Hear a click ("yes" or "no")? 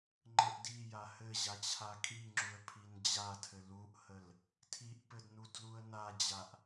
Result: yes